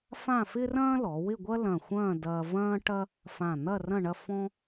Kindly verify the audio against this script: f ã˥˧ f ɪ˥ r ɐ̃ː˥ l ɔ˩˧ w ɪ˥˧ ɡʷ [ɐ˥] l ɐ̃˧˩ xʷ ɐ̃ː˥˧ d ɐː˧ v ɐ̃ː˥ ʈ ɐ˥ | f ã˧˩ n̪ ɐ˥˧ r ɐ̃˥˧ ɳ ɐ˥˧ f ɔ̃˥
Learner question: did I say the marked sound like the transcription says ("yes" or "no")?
yes